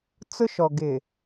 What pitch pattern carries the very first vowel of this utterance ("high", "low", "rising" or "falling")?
high